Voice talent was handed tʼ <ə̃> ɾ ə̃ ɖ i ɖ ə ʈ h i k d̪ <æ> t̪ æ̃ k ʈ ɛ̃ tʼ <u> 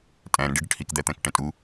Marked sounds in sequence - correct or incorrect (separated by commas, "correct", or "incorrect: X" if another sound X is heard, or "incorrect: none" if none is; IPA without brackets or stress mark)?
incorrect: æ̃, correct, correct